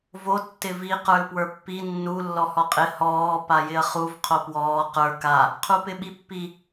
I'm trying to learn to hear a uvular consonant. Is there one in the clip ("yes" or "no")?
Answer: yes